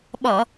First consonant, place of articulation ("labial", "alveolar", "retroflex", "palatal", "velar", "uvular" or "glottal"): labial